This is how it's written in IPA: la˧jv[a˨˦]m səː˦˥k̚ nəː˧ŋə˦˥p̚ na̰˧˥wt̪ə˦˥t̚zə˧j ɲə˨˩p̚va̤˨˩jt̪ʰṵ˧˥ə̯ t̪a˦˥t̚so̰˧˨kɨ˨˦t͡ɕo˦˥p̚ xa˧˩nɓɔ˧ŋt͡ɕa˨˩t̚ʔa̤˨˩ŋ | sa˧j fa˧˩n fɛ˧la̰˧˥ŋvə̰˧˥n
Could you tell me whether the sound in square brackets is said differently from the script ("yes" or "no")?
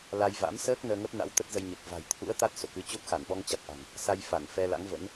yes